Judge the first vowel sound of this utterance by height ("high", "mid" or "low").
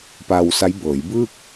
low